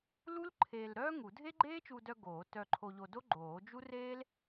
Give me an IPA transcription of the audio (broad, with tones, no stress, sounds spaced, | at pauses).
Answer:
l u˥ l ǃʰ eː˧ l ɾ œː˥ ŋ u˨˩˦ dʱ e˥ ɡ͡ǃ eː˥ t͡ʃ u˧ d œ˧ ɡ oː˨˩˦ t œ˧ ǃʰ o˧ ʎ o˧ d o˥ ɡ͡ǃ oː˨˩˦ d͡ʒ u˥ r eː˥ l